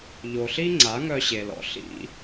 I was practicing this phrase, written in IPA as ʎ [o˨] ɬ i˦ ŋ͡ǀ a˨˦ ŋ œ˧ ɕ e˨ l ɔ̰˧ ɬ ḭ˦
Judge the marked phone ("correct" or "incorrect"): correct